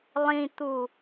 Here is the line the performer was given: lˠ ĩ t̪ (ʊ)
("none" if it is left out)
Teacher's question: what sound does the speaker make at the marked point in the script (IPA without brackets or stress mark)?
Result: u